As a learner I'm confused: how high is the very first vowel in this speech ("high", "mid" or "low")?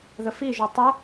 mid